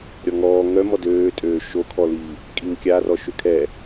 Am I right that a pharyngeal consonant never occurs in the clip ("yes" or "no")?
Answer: yes